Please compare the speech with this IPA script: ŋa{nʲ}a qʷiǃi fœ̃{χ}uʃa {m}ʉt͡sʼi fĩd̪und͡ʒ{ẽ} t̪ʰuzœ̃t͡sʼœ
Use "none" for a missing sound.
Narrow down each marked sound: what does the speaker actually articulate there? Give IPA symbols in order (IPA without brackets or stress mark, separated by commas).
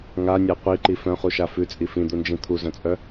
nʲ, χ, f, ĩ